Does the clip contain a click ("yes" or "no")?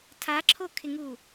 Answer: yes